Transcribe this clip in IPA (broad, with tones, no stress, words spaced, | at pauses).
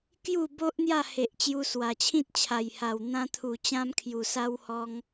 kju˥˧bo˦ʔ n̪ja˥˧he˨ʔt͡ɕju˧ swa˨˩t͡ɕʰĩ˦t̚t͡ɕʰa˨˩jha˨˩w n̪ã˧t̪ʰu˨˩ t͡ɕã˦mkʰju˨˩sa˦whɔ˧ŋ